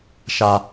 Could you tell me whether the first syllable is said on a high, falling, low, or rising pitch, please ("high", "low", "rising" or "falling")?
low